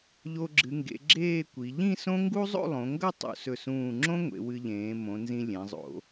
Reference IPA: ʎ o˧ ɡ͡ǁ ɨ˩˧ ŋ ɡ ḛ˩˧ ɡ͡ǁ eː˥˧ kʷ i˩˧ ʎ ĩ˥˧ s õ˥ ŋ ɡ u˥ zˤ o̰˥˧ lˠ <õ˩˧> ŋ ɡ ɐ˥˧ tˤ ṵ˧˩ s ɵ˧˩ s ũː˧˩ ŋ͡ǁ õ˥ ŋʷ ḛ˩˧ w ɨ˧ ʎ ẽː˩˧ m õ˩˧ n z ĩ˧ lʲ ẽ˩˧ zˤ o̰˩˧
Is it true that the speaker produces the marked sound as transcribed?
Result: yes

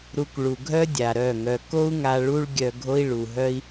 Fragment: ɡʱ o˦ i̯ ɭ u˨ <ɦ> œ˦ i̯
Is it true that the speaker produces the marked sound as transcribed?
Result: yes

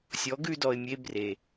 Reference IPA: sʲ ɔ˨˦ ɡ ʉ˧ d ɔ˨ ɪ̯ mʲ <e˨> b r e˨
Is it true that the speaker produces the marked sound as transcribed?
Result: no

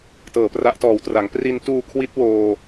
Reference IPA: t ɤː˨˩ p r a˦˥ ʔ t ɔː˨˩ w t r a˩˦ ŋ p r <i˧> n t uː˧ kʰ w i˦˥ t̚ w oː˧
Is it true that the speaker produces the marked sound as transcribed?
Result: yes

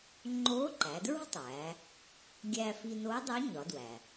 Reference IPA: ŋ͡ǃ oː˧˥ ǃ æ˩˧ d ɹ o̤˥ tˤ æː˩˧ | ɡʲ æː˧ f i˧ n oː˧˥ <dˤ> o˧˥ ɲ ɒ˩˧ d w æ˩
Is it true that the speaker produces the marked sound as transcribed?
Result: yes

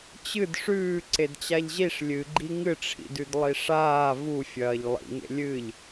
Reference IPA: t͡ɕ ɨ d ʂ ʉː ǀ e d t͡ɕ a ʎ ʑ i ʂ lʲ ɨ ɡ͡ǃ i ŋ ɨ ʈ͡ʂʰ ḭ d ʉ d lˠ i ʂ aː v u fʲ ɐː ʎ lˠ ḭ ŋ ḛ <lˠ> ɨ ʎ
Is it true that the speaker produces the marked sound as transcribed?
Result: no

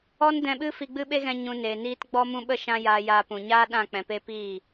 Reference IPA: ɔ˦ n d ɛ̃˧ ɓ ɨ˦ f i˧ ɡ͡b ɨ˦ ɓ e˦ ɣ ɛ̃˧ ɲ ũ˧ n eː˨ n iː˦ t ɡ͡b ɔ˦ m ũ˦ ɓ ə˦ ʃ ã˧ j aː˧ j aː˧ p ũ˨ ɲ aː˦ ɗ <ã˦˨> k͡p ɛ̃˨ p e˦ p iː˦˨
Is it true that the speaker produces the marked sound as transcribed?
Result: yes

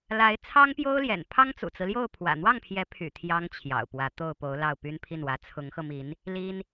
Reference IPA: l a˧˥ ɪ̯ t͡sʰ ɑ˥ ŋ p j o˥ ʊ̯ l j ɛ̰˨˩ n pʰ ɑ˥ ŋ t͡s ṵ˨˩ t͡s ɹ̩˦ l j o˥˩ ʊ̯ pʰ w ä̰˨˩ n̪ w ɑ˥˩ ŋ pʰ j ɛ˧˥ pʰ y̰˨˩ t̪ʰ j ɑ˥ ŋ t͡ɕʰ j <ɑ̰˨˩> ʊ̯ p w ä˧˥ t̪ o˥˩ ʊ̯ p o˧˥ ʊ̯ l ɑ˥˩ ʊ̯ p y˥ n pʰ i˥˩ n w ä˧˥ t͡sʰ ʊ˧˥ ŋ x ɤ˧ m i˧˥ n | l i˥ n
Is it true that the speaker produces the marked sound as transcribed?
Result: yes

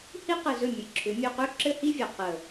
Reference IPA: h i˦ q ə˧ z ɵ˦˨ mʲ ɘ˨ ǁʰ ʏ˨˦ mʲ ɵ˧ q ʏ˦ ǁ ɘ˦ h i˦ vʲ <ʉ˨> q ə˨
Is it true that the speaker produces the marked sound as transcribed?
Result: no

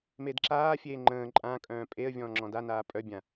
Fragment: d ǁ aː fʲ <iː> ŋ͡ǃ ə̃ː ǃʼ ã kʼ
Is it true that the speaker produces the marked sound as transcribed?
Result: no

